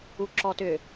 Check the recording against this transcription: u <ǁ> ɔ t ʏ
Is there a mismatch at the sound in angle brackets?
no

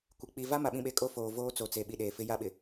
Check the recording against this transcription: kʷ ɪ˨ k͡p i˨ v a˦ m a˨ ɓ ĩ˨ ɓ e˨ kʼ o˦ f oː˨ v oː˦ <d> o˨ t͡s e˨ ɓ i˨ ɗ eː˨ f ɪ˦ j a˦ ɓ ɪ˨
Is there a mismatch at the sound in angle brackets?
yes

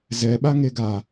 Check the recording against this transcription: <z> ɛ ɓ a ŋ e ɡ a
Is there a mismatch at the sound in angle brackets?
no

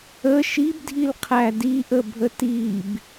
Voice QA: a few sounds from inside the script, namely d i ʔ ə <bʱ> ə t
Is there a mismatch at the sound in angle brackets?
no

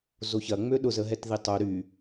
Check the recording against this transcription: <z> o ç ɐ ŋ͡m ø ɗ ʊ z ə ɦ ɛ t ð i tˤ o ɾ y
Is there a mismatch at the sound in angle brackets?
no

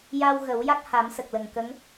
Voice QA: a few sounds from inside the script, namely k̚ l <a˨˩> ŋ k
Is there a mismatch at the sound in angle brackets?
yes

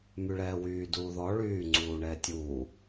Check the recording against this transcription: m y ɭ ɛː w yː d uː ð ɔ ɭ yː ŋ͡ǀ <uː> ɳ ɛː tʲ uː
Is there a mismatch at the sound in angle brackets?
no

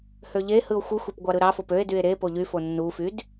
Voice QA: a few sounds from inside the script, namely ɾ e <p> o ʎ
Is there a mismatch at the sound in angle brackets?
no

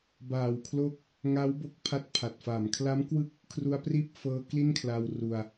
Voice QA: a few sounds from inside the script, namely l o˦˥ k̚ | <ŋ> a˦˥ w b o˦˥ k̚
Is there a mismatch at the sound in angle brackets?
no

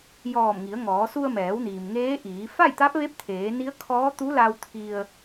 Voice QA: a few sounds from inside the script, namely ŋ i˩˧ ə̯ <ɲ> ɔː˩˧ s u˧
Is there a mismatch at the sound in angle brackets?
yes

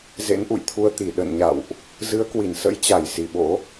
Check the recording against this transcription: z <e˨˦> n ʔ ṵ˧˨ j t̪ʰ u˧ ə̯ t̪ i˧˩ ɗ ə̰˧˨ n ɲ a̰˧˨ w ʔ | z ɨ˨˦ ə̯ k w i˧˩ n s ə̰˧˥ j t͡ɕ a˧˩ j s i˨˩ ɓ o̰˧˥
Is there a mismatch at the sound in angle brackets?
yes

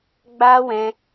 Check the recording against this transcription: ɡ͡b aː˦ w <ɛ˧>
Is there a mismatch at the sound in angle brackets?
yes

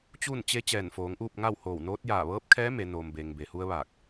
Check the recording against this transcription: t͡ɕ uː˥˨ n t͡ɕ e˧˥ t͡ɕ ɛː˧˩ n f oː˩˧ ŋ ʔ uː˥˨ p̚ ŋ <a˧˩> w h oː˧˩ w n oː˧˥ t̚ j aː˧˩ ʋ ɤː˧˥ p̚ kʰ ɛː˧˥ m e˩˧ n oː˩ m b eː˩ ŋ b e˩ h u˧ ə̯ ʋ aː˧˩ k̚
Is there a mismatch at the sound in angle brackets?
yes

